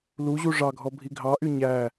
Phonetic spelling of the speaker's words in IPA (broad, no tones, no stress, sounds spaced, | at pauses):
l u ʑ u ʐ ɑ ɡʱ ɔ bʱ i ɡʱ ɑ ʔ y ɲ æ